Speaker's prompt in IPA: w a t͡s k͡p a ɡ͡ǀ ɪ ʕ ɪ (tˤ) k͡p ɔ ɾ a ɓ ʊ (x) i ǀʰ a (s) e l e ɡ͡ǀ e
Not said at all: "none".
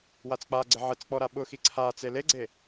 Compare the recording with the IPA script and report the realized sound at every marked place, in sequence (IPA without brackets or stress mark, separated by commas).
t͡s, x, t͡s